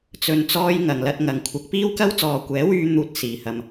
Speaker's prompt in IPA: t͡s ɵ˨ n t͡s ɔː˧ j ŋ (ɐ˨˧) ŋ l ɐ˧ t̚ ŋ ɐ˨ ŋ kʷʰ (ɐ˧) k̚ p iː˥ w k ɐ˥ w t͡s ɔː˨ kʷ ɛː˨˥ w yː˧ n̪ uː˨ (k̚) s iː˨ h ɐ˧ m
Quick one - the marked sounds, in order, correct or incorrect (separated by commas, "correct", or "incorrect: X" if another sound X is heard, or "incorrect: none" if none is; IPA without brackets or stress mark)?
incorrect: ɐ˨, incorrect: ɐ˨˥, incorrect: t̚